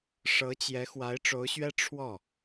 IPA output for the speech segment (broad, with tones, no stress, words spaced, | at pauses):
ʂɤ˧˥t͡ɕjɛ˧˥ xwa˧˥ɪ̯ʈ͡ʂo˧˥ʊ̯ɕɥɛ˥ ʈ͡ʂʰwɔ˥˩